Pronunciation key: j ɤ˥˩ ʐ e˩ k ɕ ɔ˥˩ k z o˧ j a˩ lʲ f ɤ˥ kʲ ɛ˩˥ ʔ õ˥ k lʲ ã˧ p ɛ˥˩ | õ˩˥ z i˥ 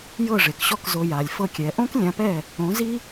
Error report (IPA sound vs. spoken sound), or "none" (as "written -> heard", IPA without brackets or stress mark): none